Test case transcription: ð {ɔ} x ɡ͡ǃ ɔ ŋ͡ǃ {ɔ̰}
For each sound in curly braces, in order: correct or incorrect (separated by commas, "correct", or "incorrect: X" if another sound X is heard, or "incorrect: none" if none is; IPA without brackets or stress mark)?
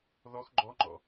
correct, correct